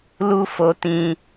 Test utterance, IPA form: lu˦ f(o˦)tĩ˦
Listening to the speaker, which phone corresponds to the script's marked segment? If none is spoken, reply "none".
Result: o˦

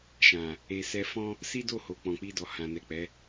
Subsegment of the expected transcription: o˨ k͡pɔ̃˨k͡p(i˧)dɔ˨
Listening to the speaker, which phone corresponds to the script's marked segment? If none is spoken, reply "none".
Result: i˧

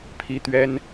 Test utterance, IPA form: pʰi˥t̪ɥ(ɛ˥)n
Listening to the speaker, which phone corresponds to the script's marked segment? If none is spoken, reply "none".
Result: ɛ˥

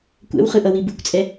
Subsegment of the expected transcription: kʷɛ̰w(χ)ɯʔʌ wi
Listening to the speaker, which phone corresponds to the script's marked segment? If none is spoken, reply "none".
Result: χ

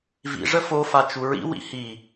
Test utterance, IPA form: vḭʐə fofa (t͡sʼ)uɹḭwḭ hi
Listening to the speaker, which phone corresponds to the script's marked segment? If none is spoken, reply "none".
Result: t͡ʃ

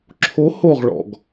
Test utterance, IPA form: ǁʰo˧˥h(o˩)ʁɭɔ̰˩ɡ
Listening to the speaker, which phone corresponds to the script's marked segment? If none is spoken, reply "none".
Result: o˦˨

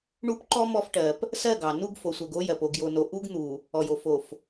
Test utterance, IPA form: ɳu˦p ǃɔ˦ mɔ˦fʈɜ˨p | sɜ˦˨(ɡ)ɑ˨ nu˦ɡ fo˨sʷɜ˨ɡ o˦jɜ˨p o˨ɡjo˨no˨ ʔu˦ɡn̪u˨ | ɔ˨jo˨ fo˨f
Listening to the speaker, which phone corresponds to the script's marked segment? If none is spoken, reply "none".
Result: ɡ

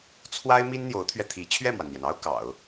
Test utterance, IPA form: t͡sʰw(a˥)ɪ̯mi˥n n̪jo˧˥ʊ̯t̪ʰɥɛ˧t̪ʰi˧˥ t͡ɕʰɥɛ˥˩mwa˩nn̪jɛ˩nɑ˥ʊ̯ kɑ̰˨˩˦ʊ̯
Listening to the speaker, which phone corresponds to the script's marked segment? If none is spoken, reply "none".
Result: a˥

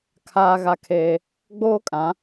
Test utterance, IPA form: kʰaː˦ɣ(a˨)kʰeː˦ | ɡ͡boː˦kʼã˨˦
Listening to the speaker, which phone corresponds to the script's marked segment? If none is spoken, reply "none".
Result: a˦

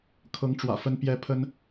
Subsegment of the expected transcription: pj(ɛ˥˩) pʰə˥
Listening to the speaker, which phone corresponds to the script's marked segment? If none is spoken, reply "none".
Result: ɛ˥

